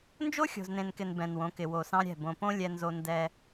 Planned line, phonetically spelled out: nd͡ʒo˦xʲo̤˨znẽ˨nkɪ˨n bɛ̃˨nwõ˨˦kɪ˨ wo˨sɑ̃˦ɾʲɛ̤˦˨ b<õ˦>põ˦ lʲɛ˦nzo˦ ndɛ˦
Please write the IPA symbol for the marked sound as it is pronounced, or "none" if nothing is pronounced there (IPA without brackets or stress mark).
õ˨